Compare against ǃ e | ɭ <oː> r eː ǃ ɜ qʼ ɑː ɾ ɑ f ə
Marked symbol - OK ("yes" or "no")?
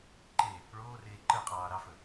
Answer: yes